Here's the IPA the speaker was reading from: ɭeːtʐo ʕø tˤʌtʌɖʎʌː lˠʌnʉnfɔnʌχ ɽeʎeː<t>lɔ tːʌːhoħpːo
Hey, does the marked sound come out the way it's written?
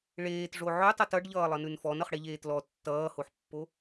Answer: yes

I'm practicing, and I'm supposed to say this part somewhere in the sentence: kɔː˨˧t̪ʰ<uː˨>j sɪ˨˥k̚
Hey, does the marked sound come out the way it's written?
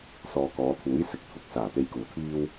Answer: no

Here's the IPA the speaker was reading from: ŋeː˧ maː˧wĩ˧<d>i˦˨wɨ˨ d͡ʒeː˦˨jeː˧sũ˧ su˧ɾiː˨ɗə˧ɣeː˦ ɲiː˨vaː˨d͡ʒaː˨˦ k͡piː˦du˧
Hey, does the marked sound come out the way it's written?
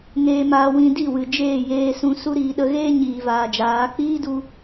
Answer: yes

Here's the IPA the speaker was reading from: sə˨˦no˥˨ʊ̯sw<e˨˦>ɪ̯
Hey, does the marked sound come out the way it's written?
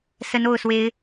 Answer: yes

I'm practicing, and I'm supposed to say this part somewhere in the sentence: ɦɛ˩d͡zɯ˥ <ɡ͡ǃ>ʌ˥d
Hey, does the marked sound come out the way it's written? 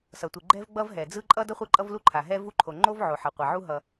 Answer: no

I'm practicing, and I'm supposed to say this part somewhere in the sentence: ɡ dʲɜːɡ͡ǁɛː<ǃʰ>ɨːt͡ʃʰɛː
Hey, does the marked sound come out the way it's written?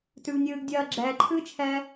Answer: yes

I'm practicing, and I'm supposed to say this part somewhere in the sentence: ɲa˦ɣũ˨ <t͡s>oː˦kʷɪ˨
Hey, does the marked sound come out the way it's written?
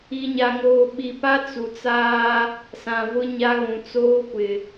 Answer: yes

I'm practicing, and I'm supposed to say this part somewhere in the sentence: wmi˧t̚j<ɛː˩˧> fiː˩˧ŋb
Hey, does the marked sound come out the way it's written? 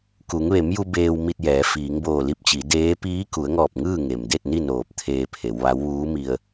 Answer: yes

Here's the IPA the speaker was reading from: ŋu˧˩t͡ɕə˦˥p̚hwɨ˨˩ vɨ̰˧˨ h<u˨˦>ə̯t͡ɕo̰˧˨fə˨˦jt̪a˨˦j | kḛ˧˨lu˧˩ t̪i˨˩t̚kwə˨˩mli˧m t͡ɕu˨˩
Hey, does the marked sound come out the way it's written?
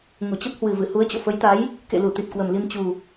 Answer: yes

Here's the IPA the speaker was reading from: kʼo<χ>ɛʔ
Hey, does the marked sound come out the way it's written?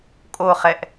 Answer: yes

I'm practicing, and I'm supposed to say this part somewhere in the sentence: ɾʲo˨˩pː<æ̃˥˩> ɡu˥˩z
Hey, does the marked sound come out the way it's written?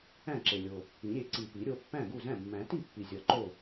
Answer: yes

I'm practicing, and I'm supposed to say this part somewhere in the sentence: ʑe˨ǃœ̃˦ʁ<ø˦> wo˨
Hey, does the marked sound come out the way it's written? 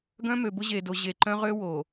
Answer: yes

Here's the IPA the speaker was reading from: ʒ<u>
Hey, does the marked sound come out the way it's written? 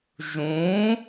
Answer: no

